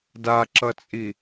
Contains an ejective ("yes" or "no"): yes